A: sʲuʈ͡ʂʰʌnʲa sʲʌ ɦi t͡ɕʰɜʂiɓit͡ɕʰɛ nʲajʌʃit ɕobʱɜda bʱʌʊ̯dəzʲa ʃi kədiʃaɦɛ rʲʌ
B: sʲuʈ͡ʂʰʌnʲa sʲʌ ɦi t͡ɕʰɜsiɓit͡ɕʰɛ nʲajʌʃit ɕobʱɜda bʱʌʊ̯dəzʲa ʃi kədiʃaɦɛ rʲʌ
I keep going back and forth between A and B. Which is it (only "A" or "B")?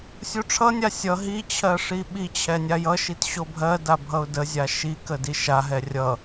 A